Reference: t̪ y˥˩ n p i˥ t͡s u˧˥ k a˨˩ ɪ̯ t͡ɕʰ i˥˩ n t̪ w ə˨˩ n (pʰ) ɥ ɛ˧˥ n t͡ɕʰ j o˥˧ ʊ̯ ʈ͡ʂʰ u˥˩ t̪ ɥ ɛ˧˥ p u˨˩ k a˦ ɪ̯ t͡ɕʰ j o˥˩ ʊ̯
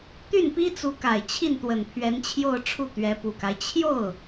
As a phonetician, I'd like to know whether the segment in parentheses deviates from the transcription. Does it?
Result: no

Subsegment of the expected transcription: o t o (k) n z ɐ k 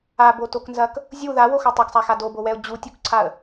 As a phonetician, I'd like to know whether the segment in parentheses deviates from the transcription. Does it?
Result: no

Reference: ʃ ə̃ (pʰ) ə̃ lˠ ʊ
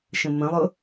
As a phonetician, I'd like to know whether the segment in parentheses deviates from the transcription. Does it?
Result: yes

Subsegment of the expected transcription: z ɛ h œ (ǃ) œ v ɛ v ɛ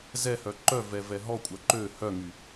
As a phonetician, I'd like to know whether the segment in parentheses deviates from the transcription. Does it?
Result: no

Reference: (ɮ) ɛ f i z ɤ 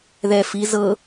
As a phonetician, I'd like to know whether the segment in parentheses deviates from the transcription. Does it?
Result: yes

